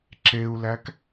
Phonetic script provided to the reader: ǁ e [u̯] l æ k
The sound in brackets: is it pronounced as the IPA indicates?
yes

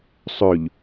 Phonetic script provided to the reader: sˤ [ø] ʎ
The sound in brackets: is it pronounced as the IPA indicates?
yes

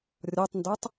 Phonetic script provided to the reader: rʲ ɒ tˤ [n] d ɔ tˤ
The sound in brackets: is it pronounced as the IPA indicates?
yes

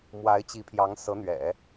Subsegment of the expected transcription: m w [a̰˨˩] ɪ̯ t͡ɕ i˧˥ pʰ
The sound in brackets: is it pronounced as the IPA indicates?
no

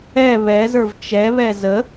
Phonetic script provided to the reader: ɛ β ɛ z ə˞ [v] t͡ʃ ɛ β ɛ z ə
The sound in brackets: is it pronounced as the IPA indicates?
yes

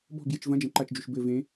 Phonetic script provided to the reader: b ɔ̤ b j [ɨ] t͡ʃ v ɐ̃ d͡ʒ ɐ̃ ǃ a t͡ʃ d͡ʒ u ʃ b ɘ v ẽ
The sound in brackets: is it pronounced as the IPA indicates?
yes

